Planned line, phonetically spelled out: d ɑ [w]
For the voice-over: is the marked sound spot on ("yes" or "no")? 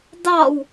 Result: yes